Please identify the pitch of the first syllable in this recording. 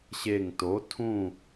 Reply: falling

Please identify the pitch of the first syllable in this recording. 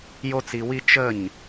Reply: high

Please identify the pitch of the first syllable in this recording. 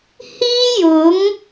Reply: high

